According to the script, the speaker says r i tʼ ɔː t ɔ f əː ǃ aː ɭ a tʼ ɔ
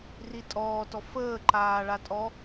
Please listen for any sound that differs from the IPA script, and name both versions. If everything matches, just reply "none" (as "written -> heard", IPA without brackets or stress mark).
none